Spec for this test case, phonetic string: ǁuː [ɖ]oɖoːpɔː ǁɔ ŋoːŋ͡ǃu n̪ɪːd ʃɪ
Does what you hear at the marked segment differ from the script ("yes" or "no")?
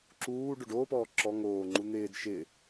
no